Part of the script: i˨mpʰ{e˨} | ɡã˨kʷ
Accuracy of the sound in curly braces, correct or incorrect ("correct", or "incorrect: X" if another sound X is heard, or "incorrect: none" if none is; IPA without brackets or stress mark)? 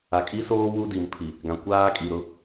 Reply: incorrect: i˨